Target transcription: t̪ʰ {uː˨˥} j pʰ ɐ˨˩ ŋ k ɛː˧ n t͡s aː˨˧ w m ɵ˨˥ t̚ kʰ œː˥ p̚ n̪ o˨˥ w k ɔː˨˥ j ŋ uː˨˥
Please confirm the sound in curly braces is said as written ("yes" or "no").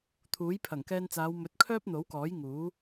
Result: yes